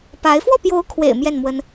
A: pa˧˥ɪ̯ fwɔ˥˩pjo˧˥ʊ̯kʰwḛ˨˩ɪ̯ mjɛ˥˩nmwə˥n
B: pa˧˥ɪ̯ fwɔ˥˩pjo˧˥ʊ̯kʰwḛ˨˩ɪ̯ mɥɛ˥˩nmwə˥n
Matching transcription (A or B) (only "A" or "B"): A